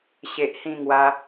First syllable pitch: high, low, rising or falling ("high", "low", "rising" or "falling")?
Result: low